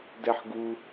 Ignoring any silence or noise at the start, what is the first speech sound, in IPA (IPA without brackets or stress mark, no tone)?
d